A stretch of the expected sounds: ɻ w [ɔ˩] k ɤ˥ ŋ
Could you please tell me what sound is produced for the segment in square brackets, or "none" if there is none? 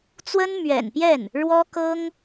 ɔ˥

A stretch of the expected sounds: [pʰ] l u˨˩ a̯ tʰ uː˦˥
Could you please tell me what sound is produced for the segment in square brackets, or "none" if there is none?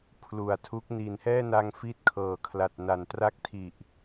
pʰ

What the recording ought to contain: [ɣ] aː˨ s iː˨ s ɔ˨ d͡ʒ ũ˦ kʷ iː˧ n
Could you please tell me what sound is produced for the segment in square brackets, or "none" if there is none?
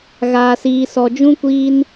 ɣ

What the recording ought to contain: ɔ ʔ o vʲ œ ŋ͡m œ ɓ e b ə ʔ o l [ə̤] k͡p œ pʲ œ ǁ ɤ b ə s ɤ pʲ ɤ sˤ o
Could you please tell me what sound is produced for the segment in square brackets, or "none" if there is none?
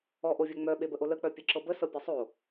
ə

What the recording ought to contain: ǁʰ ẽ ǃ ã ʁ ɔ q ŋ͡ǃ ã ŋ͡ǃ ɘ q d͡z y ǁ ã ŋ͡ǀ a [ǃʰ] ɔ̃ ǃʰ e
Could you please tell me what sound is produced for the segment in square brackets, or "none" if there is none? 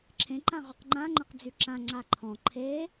ǃʰ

